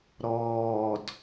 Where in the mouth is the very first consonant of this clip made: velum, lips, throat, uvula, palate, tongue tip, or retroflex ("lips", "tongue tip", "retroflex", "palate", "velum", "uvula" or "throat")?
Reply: tongue tip